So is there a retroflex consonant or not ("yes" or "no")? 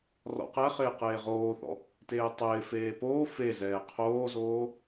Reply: no